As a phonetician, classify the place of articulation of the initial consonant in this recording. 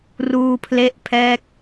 alveolar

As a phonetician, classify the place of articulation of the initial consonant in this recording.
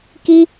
velar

